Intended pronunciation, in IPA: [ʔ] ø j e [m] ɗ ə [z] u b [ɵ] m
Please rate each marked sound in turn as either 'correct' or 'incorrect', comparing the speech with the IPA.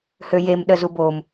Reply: incorrect, correct, correct, incorrect

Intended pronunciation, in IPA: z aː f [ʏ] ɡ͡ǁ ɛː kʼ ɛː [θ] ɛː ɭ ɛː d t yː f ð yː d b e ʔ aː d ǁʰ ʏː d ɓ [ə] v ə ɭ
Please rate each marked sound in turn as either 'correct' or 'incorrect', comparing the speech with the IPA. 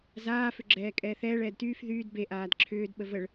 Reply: correct, correct, correct

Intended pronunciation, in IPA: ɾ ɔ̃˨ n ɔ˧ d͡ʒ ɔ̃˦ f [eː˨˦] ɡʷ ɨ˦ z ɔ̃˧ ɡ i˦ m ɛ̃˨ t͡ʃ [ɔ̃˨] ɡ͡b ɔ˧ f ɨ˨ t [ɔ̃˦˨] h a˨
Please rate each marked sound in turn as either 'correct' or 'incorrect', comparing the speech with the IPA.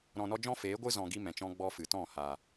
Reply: correct, incorrect, correct

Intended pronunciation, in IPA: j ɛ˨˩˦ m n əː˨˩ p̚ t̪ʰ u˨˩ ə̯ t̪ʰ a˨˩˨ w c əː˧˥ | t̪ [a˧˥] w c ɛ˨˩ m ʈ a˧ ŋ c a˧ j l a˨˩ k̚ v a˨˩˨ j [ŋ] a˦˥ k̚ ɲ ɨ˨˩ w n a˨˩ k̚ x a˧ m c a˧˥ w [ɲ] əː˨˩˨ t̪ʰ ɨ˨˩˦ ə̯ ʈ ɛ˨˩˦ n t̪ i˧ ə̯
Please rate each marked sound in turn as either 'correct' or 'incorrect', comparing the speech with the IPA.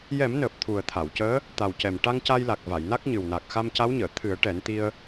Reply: incorrect, incorrect, correct

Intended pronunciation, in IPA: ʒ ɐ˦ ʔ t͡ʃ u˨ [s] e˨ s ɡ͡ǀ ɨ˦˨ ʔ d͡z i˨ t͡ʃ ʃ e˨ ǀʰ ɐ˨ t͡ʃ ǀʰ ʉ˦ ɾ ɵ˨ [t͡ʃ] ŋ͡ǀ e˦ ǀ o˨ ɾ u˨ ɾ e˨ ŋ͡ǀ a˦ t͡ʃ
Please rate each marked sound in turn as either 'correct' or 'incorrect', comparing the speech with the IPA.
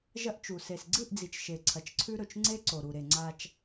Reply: correct, correct

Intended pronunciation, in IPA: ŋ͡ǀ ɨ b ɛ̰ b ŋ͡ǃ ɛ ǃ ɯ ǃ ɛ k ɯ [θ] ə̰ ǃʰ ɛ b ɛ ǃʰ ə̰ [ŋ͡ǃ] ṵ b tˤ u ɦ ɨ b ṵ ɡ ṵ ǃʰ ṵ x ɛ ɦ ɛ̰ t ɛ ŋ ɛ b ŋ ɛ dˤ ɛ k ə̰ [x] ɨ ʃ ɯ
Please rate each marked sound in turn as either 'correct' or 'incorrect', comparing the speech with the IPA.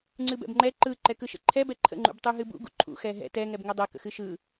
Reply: incorrect, correct, correct

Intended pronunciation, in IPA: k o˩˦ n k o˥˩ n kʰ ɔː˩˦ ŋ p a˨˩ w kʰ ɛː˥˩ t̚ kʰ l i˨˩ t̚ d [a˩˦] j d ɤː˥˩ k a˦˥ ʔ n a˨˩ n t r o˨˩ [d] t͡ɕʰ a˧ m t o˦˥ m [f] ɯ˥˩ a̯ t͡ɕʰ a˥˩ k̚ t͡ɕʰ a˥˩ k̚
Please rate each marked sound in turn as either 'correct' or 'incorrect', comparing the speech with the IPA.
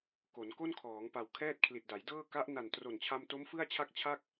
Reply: correct, incorrect, correct

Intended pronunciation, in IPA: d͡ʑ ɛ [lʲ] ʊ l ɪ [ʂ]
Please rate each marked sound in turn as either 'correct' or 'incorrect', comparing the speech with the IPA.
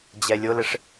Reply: correct, correct

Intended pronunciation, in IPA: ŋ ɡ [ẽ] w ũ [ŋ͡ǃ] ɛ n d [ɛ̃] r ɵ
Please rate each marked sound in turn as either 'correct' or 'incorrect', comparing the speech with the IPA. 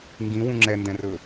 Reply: incorrect, incorrect, correct

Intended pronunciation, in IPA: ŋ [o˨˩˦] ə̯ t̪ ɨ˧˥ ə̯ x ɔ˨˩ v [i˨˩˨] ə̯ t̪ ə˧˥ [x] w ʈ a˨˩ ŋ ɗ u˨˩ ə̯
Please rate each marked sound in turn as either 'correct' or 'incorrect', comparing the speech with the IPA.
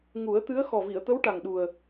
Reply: incorrect, correct, incorrect

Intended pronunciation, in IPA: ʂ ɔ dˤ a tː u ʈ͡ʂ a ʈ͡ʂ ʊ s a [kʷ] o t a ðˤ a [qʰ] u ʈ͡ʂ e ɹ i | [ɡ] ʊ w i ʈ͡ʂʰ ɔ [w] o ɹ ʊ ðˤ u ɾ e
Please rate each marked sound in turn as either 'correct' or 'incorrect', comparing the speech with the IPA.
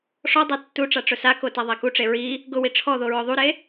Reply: incorrect, incorrect, correct, incorrect

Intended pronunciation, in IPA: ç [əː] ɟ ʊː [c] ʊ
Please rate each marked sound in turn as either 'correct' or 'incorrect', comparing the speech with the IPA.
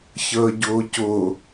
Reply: correct, correct

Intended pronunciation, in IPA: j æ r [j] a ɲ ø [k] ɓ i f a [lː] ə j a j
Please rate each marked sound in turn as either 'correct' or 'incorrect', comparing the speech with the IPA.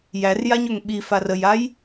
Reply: correct, incorrect, incorrect

